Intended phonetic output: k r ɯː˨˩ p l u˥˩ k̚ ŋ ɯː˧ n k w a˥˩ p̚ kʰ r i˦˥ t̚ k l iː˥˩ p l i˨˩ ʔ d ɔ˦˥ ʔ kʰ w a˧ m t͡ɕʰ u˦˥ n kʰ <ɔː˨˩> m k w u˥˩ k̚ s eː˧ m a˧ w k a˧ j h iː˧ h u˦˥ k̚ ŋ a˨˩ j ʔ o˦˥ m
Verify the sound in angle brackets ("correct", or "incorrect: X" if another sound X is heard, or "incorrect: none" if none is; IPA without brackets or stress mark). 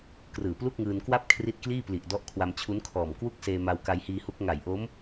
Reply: correct